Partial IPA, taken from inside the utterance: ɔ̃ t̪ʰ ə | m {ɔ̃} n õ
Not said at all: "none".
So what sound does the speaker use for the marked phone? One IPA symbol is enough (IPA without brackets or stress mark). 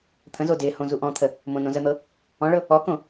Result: õ